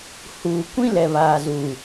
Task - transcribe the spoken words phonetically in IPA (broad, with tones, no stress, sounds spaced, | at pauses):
h uː˨ kʷ ĩ˦ l ɛ˨ β aː˨ z u˨